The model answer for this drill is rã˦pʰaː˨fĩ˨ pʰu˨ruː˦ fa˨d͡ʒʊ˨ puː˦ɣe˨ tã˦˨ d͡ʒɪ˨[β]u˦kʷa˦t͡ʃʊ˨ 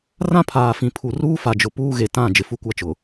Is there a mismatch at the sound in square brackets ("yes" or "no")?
yes